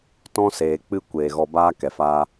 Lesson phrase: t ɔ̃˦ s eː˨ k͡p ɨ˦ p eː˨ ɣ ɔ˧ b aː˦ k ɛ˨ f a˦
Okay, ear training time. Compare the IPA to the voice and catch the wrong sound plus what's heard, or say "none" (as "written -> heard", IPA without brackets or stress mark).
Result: p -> kʷ